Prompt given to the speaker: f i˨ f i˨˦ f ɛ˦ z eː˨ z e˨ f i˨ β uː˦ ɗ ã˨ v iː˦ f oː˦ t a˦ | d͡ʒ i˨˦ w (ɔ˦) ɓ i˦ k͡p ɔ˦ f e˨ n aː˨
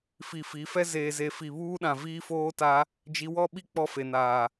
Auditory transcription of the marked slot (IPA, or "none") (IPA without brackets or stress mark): ɔ˦